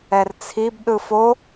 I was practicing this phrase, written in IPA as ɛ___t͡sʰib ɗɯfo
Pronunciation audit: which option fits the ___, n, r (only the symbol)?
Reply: r